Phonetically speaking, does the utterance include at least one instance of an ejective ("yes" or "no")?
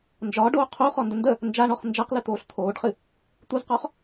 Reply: no